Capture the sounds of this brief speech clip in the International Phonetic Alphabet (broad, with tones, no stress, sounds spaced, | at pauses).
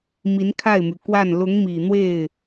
m i˧˥ n kʰ a˥˩ ɪ̯ m y˩ k w a˥˩ n l ʊ˧˥ ŋ m i˨˩ n̪ w e˥˩ ɪ̯